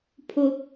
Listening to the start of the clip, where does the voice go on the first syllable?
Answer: low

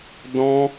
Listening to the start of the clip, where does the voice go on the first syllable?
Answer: high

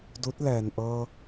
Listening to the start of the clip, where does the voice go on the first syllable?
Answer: rising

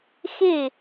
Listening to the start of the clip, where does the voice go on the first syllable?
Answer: falling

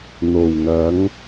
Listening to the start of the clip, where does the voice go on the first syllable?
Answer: low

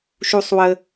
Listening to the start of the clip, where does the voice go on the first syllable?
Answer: high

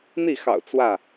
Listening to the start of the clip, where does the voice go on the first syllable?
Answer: falling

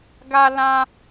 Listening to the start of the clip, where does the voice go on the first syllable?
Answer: high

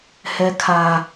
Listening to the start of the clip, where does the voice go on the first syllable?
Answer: high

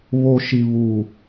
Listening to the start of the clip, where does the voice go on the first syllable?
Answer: low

